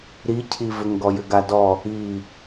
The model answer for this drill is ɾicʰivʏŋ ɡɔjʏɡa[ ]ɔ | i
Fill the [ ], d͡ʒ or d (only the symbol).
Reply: d